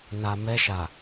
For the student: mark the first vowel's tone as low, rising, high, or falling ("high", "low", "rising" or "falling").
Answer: low